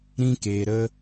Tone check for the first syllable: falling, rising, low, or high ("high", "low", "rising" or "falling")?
high